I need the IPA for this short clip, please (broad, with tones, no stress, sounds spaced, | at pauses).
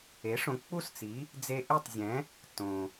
e˩˥ ʂ õ˩˥ k͡p u˥ s t͡s i˩˥ | d͡z e˧ ʔ i˥˩ tˤ zʲ ɛ̃˩˥ | t õ˩